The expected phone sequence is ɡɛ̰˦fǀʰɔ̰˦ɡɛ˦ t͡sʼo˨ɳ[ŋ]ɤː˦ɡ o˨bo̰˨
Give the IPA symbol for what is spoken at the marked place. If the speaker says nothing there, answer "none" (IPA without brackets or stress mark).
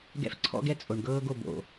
ɡ